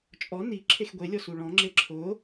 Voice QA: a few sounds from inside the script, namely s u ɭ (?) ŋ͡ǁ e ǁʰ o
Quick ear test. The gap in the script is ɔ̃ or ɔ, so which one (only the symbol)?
ɔ̃